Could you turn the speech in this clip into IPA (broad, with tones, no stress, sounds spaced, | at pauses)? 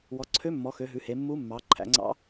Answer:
w ɔ˩˧ ǀʰ ø˧˥ mː ɔ˩˧ x ø˩˧ ɦ ʉ˩˧ h e˩˧ mː u˧˥ mː ɑ˩˧ ǃʰ æ̰˩˧ ŋ͡ǀ ɑ̰˧˥